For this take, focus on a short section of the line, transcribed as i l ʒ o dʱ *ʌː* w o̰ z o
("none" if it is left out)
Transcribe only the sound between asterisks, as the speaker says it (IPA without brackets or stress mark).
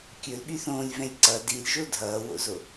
ʌː